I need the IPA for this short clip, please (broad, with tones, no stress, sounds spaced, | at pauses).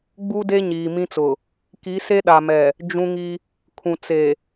ɡ͡b u˦ d e˦ ɲ iː˨ m ĩ˦ t͡s ʊ˨ | k i˨˦ s e˦ ɗ a˨ m ɛ˨ | d͡ʒ ũ˦ ŋ i˦ | kʰ ũ˨ t͡s e˨